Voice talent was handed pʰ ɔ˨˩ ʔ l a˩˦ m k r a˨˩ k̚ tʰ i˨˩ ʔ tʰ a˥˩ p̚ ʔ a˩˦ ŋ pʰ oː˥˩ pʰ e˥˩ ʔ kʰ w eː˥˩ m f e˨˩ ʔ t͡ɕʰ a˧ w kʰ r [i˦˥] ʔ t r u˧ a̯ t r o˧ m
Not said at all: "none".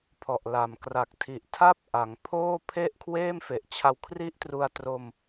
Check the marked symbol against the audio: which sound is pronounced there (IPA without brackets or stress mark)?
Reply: i˥˩